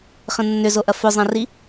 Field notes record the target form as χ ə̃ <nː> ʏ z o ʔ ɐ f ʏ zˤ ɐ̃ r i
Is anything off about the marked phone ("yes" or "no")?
no